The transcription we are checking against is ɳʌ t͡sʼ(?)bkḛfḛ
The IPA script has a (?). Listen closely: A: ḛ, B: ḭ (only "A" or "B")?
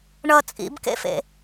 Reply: B